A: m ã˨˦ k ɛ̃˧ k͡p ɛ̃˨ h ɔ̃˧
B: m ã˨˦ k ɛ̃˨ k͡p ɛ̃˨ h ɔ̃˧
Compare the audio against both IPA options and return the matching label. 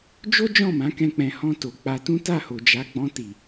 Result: A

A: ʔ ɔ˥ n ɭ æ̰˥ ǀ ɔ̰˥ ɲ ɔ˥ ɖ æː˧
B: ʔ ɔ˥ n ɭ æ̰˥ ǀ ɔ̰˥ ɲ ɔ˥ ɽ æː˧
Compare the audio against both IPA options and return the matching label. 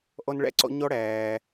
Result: B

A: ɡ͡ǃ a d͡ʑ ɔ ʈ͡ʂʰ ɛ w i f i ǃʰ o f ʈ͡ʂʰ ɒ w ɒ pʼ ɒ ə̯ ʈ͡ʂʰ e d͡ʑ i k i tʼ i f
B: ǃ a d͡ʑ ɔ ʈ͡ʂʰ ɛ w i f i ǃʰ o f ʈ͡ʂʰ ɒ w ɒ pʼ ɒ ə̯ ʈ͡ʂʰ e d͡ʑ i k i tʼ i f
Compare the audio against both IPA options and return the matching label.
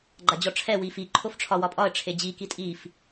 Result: A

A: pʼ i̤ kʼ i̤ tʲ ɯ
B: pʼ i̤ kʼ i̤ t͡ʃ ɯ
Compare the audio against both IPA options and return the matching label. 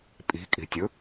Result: A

